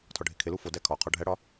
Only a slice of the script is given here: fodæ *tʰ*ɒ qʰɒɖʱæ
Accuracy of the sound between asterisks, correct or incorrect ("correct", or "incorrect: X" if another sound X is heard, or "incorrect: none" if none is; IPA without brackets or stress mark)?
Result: incorrect: kʰ